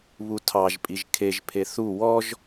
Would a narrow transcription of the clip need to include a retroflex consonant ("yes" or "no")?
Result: no